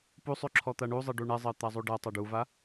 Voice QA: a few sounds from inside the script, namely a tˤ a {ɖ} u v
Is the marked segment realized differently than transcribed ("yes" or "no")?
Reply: no